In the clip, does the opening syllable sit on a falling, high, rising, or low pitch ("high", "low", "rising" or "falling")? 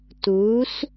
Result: rising